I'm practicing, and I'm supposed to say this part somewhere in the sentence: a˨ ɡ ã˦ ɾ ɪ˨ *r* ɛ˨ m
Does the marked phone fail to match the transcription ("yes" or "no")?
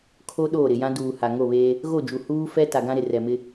no